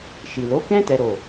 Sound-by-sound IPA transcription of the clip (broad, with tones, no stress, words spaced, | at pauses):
ʃi˨lo˨˦kɛ̃˦ tɛ˦ɾo˦˨